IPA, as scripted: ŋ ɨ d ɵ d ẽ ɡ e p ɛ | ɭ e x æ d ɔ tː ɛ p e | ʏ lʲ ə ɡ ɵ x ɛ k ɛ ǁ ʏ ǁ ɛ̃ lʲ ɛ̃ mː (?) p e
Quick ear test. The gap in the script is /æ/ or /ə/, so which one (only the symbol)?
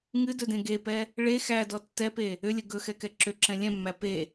æ